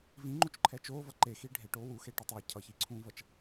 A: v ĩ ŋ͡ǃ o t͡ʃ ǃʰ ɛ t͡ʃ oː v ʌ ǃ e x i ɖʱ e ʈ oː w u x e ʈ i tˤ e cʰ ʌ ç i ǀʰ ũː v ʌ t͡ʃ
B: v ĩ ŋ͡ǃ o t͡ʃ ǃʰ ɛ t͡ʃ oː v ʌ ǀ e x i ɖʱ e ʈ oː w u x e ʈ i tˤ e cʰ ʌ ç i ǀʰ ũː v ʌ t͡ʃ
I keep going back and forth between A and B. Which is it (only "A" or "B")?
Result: A